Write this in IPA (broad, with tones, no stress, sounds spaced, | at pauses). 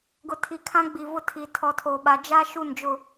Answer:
ɡ ʊ˨ tʰ i˨ kʰ ã˦ ɡ͡b i˨ v ʊ˦ tʰ i˨ tʰ ɔ˨ tʰ oː˨ ɓ a˨ d͡ʒ a˦ ʃ u˦˨ n d͡ʒ ʊ˦˨